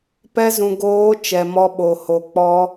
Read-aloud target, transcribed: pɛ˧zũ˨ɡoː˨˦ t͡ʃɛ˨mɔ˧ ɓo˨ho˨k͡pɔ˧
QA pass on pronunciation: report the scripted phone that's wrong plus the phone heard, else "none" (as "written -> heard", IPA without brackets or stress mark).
none